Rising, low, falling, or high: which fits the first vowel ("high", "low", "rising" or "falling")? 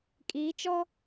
rising